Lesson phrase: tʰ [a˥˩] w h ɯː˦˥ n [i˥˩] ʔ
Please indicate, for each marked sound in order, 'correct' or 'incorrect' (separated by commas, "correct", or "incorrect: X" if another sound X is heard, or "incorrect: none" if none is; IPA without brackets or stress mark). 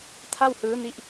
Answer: correct, incorrect: i˦˥